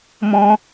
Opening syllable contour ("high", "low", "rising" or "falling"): high